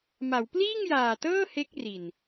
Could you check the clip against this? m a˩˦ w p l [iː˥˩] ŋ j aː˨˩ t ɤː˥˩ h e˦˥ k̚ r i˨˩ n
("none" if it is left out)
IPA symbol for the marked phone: iː˥˩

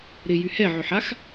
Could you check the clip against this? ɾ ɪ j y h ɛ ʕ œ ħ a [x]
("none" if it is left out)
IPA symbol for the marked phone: x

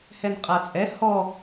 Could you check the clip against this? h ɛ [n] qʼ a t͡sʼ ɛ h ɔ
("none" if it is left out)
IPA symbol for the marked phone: n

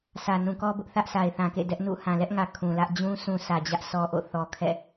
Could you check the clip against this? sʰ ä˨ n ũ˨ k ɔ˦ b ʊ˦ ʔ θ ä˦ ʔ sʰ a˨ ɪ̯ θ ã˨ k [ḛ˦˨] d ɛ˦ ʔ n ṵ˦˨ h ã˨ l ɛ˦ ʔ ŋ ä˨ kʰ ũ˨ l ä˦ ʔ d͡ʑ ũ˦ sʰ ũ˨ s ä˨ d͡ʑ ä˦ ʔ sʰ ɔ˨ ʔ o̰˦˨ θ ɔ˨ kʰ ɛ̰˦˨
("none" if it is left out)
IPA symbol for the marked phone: ḛ˦˨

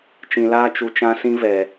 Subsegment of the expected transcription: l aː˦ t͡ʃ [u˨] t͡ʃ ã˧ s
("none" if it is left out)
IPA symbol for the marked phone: u˨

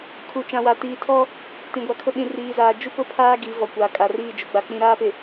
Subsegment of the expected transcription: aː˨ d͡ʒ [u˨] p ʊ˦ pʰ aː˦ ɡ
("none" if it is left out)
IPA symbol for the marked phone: u˦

